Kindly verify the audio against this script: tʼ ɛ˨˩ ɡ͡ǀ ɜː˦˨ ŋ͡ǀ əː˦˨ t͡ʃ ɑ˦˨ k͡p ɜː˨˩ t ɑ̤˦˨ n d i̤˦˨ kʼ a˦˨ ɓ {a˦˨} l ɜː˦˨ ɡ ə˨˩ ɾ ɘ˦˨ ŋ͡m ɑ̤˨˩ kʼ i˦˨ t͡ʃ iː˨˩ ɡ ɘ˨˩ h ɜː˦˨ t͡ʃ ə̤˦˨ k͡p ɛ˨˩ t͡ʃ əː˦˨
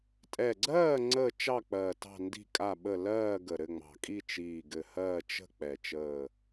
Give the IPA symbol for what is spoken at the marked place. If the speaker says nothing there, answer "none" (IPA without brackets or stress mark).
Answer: ə˦˨